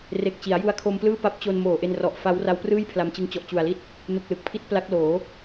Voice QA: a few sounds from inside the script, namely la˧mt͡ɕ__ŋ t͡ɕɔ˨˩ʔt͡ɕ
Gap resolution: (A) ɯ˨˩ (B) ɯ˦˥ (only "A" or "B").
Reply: B